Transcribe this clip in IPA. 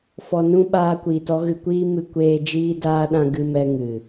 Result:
f ɔ˧ n ũ˦ ɓ aː˦ kʷ iː˧ t ɔ˦ ɣ ɨ˧ kʷ iː˦ m ɨ˧ kʷ eː˧ d͡ʒ iː˦ d aː˦ ɗ ã˦ ɡ ɨ˧ m ɛ˧ ŋ ɨ˨

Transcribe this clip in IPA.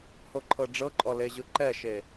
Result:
h o ǃʰ ɤ ɖ͡ʐ ɤ ǃʼ ɔ l e ʑ ɯ ǃ ɛ ʃ e

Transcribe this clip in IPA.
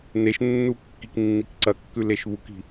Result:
n e ʃ nː u kː i k nː i k ǀ ɐ kː ʉ l e ʃ β u k i̤

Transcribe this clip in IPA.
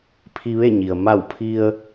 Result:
pʰ i˧ ʋ e˥˨ ɲ i˩ ə̯ m a˧˩ w pʰ i˧ ə̯

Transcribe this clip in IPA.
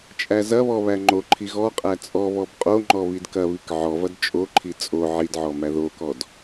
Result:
t͡ʃʼ æ z ɐ β ɔ β æ ŋ͡ǃ o ǃʰ i ɣ ɔ qʼ æ t͡sʼ ɔ β ɔ b qʼ o ŋ͡ǃ ɔ β i d k ɐ β i k ʕ ɔ v ɐ d t͡ʃʼ o ǃʰ i t͡sʼ o ʕ i d ʕ ɔ m æ ð o k ɔ d

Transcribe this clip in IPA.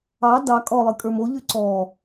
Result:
ɑ d ɑ kʼ ɔ lˠ ɨ kʼ ə˞ m o ʎ y ǀ ɔ

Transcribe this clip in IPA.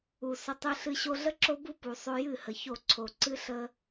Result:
u˨ s ə˧ tˤ ɨ˦ ɬ ɨ˦ ɕ o˧ ɮ ə˦ ǁ o˦ b u˦ p u˨ sˤ o˦ j ɨ˦˨ h ə˨ ç o˦˨ ǀʰ o˨ ǀ ɨ˦ ɬ ə˦

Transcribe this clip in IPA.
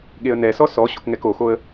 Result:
ɠ e ə̯ n ɛ s ɔ s ɔ ɕ o̰ k ŋ ɛ k o x o ə̯

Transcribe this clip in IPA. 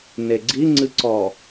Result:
n e ɡ͡ǀ i ŋ͡ǀ ɨ ǀ ɔ

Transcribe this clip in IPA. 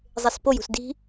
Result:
zˤ e s p o j ṳ s d i̤

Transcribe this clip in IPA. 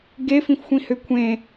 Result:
ɡ e f ĩ f xʷ ĩ h ʏ kʷʰ ẽ

